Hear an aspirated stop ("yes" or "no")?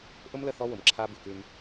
yes